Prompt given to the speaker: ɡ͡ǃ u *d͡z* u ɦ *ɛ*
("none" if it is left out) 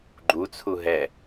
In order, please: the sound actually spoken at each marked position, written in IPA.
t͡sʰ, ɛ

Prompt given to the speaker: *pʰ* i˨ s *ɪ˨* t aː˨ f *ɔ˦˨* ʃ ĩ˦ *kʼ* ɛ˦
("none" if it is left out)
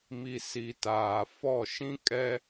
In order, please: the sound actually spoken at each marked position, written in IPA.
m, i˨, ɔ˦˨, kʼ

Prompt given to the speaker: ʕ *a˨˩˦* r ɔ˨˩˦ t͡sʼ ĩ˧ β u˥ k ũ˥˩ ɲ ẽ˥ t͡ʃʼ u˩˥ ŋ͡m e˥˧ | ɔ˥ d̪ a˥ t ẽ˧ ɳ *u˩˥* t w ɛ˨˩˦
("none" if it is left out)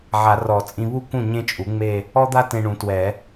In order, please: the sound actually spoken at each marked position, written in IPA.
a˨˩˦, ũ˩˥

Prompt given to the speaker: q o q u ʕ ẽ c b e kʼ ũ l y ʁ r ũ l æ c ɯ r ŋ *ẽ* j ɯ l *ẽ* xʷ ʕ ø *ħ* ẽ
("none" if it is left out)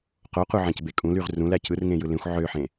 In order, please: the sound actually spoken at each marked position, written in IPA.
ẽ, ẽ, ħ

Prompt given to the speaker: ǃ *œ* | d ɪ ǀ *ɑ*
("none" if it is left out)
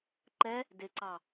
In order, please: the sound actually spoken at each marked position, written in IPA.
ɛ, ɑ

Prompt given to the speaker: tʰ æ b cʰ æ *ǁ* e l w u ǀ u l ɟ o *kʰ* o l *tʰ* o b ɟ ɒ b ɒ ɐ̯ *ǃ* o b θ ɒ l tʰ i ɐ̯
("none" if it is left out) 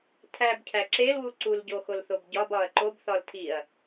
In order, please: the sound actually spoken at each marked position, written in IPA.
ǁ, x, θ, ǃ

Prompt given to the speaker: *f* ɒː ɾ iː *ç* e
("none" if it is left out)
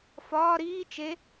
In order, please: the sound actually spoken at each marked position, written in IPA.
f, t͡ʃ

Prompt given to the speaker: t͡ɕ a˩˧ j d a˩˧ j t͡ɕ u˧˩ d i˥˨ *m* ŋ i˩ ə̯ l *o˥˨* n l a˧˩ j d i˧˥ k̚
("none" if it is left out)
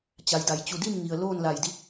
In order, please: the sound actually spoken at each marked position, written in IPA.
m, oː˥˨

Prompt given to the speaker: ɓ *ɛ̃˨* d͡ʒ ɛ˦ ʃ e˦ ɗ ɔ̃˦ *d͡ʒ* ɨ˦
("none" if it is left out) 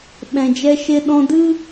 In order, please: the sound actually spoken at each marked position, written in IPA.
ɛ̃˨, d

